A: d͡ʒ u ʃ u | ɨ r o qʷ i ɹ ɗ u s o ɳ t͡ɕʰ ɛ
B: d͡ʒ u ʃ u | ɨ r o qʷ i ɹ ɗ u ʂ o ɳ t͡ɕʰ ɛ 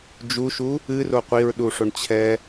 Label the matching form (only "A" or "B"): B